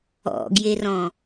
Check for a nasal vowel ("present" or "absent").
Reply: present